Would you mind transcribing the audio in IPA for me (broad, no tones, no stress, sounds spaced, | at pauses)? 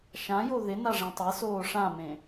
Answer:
ʃ ã j o ð ɪ n a ʐ ẽ tˤ e s oː ʂ ã m ẽ